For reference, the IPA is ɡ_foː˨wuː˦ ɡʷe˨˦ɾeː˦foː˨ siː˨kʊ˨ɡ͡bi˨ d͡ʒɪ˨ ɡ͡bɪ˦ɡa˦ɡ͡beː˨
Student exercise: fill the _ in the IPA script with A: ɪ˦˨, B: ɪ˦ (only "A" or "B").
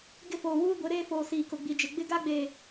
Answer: A